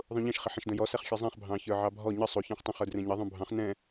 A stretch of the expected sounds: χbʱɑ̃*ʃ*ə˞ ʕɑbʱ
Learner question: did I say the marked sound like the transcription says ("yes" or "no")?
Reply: no